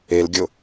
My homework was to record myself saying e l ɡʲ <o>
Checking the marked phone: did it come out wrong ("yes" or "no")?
no